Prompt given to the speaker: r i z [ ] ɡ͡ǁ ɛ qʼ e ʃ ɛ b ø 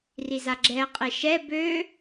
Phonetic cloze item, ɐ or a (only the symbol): a